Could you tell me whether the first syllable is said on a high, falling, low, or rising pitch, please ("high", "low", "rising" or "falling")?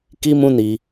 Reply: high